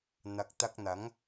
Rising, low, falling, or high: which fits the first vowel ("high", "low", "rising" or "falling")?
low